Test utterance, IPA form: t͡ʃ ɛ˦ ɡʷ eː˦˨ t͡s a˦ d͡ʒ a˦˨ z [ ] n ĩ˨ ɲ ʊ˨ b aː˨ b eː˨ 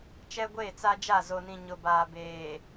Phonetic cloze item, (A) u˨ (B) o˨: B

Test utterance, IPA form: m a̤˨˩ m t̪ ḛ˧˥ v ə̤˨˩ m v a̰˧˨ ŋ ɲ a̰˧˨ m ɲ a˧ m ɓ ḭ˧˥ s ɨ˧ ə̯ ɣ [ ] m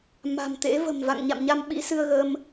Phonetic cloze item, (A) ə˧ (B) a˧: A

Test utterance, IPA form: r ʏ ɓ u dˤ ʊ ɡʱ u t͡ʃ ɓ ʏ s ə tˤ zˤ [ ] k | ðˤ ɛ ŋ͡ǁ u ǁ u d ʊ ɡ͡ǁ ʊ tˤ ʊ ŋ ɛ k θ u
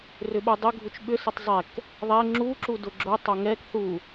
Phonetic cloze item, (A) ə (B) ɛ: B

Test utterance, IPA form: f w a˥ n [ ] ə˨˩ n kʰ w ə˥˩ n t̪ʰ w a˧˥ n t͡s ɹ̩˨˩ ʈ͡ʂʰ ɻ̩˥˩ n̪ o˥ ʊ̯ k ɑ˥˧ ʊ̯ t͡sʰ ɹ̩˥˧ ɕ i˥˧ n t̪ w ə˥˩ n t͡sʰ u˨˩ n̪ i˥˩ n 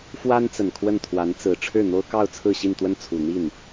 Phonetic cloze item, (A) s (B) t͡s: B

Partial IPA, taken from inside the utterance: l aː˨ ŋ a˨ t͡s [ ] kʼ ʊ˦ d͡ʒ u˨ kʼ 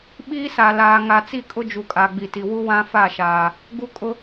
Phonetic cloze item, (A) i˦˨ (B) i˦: A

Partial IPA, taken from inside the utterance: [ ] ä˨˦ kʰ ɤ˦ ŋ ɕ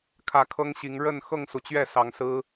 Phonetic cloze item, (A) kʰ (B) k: A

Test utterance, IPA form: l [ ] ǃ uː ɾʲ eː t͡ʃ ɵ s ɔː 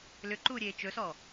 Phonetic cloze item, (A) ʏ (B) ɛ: A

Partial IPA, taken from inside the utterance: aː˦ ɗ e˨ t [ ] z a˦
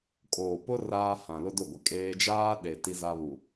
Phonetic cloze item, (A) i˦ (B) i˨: A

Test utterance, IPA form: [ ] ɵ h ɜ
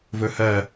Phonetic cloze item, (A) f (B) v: B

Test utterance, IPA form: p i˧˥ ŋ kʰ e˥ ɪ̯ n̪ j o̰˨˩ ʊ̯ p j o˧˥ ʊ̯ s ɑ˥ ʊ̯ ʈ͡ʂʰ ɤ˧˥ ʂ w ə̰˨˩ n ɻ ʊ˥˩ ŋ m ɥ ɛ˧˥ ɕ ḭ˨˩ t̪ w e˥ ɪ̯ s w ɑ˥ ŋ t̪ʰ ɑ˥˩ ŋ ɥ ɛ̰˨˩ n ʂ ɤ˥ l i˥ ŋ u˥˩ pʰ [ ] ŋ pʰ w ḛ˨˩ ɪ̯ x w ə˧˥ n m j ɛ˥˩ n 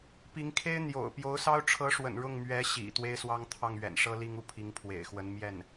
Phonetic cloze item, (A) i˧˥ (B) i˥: A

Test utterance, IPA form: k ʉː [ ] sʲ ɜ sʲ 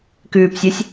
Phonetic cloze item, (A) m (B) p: B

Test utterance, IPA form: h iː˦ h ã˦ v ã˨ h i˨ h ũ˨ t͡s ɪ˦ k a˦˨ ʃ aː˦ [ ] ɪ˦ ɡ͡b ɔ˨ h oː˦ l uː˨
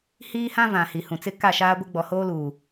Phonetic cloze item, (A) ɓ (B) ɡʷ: B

